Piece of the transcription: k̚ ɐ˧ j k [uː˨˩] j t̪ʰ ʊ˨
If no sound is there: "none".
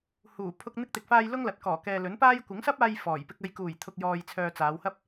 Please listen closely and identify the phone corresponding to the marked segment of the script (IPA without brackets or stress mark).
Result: uː˨˩